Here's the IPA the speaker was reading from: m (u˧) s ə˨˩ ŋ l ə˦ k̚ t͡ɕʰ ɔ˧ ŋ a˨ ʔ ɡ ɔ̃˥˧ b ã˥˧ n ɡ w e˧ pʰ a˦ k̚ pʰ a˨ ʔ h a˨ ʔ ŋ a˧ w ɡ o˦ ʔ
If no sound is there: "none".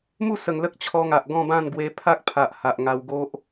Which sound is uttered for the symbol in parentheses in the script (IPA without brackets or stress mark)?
u˥˧